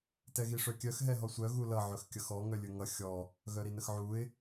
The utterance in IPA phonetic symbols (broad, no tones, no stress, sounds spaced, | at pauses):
t ɛ ɣ i ʂ œ kʲ œ x ɦ ɛ ɦ ɔ sʷ œ ɣ u l ʌ ʕ ɵ x kʲ ʌ x ɔ ŋ œ lʲ ɵ ŋ ʌ xʲ ɔ | ɣ œ ɾ i n ə x ʕ u ɪ̯